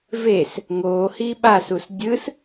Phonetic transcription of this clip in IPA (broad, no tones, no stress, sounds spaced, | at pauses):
v e s | ŋ oː h iː ɓ a s u s dʲ ɯ s